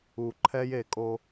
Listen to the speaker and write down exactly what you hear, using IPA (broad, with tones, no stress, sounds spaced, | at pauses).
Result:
u˨ ǃʰ ɛ˦ j e˦˨ kʼ o˦